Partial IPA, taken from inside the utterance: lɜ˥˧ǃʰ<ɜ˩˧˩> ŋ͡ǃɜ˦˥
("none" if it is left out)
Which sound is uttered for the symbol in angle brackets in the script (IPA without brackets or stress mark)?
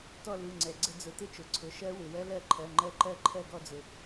ɜ˩˧˩